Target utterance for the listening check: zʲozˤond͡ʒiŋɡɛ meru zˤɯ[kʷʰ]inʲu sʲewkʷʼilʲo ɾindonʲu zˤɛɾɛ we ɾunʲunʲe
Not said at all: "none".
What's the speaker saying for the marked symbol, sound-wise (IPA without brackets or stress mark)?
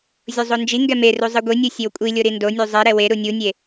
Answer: ɡʷ